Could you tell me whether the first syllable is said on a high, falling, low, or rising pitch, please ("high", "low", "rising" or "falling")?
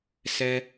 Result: high